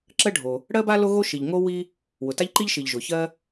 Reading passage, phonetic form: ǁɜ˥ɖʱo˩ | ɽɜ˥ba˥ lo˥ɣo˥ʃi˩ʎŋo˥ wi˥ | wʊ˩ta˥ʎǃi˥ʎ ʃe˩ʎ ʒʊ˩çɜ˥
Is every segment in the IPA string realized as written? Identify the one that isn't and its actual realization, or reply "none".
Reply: e˩ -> i˩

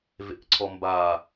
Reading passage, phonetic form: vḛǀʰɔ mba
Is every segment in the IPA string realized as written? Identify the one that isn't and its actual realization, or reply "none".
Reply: none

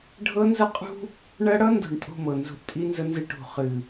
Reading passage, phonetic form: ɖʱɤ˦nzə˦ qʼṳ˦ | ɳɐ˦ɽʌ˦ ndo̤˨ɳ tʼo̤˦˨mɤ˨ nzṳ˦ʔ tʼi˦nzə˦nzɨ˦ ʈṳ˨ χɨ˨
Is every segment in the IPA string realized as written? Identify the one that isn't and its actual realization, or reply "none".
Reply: none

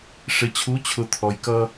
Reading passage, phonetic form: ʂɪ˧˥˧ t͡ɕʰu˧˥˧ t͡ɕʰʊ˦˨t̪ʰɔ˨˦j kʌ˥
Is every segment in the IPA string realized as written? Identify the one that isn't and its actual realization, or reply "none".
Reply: none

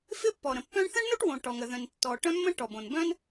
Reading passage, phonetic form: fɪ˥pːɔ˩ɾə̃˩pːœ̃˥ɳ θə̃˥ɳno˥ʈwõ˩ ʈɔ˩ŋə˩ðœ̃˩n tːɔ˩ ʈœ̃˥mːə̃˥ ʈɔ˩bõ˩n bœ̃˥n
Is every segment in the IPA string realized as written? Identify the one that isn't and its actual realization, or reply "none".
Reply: none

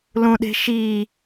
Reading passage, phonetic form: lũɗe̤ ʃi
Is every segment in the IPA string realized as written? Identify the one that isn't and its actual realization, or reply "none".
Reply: none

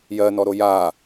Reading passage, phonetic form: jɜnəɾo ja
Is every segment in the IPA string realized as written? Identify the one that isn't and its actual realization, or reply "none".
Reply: ə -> ɔ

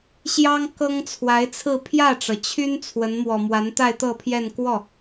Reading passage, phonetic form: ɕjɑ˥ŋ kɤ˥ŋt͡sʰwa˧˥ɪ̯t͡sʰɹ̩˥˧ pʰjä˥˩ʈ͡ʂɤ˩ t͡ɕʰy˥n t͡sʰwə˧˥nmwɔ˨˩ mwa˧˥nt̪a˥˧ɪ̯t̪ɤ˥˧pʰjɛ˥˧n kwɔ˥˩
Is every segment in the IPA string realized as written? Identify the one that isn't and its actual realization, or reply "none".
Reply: none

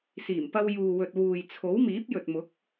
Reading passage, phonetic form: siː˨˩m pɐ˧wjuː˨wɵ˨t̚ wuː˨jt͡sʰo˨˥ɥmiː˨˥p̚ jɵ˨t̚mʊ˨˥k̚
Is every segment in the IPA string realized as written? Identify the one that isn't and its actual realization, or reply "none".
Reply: ɥ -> w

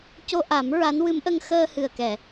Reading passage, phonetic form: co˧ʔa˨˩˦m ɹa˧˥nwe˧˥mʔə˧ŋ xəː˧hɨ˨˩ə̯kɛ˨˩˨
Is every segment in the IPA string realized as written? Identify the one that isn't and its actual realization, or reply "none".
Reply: e˧˥ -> ɨ˧˥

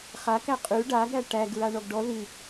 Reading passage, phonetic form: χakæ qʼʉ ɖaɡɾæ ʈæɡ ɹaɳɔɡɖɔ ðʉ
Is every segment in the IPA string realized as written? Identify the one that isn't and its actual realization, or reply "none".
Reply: none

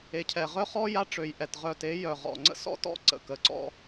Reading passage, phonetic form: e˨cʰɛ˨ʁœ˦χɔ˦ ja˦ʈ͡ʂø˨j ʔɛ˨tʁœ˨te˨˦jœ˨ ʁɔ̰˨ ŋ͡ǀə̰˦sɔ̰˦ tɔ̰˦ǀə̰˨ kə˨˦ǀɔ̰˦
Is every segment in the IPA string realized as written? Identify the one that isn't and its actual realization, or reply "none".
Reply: none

